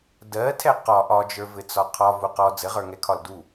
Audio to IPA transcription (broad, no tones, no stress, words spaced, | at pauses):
dɜtʰɛ qɒ ʔɒd͡ʒə˞vɘt͡sɒ qʰɒ vuqɔ d͡zɘʁə˞ŋɛkʰɒl du